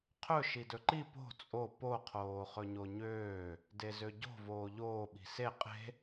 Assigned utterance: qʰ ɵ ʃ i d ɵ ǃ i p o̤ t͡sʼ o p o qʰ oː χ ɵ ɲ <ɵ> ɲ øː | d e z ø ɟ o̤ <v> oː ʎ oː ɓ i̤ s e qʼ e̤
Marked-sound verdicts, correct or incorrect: incorrect, correct

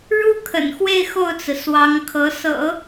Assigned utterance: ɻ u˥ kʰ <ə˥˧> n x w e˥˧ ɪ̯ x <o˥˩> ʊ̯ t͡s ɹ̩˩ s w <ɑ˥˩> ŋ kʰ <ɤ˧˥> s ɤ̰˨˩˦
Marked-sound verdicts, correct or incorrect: incorrect, correct, incorrect, correct

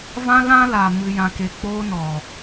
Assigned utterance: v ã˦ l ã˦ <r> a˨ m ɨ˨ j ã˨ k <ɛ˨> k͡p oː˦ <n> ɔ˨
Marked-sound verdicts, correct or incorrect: incorrect, incorrect, correct

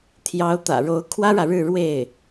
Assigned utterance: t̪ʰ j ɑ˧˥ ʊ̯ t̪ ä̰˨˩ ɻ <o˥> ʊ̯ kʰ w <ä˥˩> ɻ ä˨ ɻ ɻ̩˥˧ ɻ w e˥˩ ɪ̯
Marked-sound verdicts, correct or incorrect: incorrect, incorrect

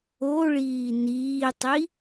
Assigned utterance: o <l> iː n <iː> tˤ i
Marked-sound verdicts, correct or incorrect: incorrect, correct

